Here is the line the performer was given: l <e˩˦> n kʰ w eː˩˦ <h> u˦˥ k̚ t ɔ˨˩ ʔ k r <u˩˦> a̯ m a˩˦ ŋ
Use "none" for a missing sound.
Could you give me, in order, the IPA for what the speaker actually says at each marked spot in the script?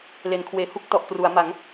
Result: e˩˦, h, u˩˦

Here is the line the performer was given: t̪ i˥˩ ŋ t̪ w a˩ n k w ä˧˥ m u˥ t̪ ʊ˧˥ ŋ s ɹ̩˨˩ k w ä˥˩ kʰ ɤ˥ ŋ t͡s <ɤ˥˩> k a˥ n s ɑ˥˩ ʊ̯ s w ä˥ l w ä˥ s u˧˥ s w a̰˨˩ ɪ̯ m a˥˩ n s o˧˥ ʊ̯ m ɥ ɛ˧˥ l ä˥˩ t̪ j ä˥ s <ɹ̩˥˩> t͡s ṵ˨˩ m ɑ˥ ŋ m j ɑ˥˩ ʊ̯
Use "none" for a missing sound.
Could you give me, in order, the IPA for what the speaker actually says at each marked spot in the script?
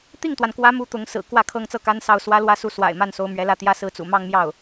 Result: ɤ˥˩, ɹ̩˥˩

